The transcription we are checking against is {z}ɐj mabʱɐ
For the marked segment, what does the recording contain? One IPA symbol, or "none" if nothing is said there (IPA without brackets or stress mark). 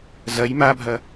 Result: z